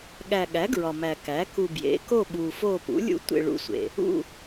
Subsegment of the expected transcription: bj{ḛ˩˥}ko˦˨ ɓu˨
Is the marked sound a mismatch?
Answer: no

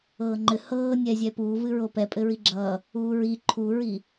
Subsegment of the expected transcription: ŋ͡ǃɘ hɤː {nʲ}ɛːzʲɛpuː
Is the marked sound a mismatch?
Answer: no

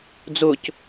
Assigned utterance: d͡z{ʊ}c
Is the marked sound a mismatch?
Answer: no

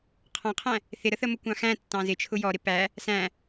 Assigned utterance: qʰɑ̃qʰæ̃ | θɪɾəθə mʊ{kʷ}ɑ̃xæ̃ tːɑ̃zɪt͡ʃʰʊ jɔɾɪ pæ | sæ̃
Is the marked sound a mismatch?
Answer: no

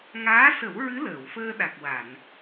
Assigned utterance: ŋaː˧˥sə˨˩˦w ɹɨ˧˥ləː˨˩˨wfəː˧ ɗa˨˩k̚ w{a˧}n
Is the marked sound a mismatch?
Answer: yes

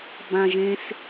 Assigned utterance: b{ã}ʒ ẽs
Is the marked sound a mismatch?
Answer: no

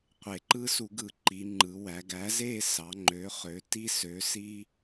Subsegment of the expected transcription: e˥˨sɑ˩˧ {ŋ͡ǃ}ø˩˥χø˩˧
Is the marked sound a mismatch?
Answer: no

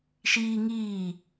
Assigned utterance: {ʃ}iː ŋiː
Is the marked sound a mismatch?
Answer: no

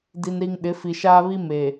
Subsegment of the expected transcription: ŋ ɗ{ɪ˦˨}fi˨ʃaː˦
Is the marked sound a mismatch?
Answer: yes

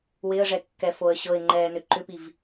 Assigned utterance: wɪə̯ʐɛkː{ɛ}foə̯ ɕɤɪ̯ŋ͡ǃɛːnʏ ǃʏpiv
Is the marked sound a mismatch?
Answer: no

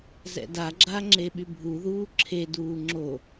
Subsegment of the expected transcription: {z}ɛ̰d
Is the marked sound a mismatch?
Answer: no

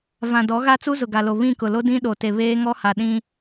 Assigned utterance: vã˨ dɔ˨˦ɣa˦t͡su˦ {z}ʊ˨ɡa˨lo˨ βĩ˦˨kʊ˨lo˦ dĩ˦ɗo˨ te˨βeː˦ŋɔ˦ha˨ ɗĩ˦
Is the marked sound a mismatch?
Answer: no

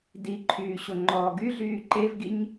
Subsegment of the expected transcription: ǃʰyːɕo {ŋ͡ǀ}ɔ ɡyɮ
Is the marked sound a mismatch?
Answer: yes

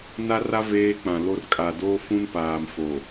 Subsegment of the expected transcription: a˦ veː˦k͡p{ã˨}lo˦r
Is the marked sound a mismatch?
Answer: no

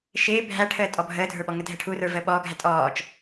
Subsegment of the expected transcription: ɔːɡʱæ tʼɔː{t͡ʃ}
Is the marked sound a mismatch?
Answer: no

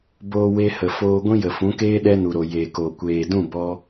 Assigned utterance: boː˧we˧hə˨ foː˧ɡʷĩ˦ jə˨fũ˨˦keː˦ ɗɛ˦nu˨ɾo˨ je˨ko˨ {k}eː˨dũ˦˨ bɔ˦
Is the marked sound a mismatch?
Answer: yes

